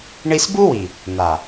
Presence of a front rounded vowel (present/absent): absent